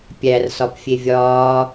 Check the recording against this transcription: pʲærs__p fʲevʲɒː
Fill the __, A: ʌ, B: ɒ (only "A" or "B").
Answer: B